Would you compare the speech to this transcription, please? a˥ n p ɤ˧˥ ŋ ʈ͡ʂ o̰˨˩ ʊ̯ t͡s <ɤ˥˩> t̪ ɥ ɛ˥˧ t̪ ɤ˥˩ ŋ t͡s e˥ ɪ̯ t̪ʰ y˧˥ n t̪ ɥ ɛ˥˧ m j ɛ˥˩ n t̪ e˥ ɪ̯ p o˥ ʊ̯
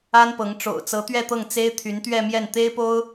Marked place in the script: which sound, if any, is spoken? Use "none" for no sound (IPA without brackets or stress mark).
ɤ˧˥